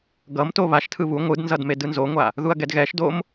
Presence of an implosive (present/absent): absent